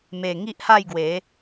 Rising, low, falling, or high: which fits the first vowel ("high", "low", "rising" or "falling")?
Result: low